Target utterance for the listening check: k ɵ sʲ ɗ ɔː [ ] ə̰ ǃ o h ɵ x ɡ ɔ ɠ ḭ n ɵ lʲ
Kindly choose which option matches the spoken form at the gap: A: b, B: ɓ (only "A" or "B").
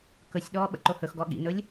B